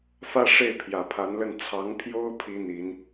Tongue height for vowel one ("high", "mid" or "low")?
low